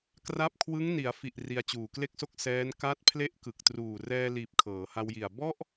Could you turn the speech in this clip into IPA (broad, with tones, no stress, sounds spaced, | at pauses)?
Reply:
k r a˦˥ p̚ kʰ w ɯ˦˥ ŋ n i˩˦ a̯ f i˨˩ ʔ r i˧ a̯ t͡ɕ uː˨˩ k l e˥˩ k̚ s o˥˩ k̚ s ɛː˦˥ n k a˦˥ t̚ pʰ l e˦˥ ʔ k ɯ˨˩ k̚ t r uː˨˩ r ɛː˧ l iː˨˩ p̚ kʰ ɤː˩˦ h a˧ w j i˨˩ a̯ b ɔ˥˩ ʔ